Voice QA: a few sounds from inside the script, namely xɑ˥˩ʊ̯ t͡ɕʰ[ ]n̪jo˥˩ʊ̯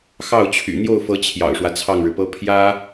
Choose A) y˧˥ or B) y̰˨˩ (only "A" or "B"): B